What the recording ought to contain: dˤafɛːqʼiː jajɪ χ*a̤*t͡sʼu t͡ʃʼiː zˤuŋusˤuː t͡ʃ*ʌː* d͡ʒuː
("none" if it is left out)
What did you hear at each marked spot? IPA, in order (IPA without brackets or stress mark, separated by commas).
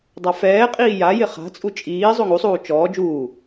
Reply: a̤, ɔː